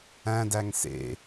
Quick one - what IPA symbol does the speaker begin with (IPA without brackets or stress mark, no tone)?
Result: æ̃